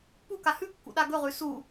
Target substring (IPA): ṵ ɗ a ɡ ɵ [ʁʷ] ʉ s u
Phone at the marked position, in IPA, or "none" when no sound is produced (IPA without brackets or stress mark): ʁ